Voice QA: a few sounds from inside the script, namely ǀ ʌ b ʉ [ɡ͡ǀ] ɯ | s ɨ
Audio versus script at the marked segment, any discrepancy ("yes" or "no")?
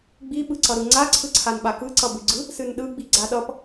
no